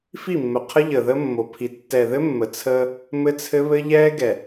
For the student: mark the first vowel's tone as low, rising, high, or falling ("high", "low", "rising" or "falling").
falling